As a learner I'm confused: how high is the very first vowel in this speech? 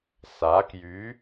low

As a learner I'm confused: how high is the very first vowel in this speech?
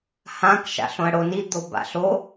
low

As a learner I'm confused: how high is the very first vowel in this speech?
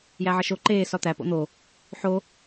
low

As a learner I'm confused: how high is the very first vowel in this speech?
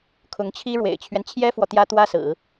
high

